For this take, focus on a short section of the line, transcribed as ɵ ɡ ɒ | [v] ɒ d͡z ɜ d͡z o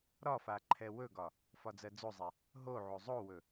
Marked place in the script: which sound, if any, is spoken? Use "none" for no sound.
f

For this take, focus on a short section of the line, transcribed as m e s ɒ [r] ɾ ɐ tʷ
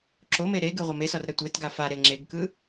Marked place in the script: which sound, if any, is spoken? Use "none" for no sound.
r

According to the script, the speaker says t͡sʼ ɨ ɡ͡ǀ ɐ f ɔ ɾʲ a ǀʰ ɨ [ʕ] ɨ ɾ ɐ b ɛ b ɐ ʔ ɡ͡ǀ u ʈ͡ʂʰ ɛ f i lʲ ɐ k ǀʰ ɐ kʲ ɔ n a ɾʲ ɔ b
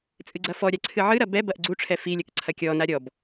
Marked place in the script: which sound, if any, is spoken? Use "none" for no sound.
ʕ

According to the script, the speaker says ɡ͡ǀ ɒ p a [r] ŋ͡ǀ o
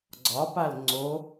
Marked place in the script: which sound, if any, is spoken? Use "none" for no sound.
l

